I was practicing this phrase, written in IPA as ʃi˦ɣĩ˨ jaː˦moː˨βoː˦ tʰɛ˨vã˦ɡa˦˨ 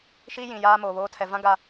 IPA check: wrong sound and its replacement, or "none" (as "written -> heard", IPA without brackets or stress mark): ɣ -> j